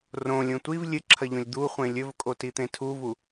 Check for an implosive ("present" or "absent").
absent